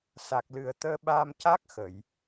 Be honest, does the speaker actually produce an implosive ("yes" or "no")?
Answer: yes